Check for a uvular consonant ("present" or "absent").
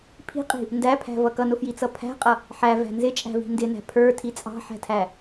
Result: present